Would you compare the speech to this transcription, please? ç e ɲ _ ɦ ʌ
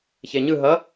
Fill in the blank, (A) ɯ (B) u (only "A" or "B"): A